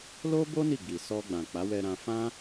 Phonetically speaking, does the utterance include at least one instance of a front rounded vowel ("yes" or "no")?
no